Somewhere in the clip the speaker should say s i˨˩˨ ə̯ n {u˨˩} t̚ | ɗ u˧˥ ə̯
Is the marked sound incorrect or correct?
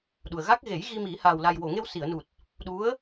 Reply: correct